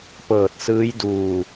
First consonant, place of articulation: labial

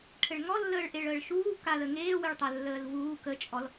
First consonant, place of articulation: retroflex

